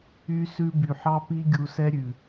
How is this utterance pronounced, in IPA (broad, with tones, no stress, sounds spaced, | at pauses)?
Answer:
y˦ s ʉ˧ b y˨ ħ ɑ˦ p i˦ ɡʲ u˧ s ɛ˦ ɾʲ ʉ˨